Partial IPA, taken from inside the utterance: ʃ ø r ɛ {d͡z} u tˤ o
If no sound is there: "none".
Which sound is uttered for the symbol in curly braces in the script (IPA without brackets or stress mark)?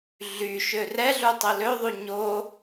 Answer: ɮ